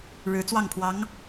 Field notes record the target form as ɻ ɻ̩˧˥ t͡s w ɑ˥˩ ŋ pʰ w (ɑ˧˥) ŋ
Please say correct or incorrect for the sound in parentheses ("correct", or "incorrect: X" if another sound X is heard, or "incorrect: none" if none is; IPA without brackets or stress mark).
correct